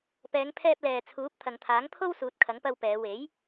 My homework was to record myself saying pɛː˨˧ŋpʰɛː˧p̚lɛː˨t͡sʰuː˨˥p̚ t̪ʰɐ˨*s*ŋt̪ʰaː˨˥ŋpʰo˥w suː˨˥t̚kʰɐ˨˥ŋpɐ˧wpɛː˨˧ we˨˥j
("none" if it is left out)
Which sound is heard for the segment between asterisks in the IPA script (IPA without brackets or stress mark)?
none